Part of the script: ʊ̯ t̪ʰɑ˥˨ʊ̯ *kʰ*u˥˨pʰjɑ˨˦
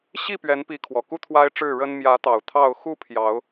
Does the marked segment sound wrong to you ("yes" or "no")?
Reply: yes